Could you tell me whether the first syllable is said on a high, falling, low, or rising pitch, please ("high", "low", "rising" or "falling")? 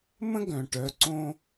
high